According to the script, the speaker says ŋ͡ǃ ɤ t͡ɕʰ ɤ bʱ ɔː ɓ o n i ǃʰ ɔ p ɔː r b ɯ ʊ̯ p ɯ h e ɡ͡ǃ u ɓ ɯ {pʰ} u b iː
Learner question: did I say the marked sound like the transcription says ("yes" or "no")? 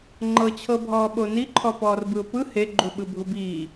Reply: no